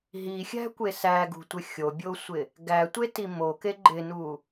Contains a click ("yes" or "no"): yes